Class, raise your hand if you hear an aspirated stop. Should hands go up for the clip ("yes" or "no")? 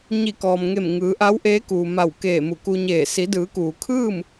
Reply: yes